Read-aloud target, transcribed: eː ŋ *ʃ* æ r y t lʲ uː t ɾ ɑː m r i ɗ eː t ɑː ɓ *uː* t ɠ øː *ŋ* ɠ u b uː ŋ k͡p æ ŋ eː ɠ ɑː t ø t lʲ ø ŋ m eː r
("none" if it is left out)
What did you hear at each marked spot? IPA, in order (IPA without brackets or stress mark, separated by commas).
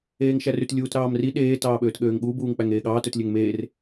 ʃ, øː, ŋ